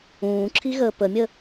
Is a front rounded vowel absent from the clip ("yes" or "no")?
yes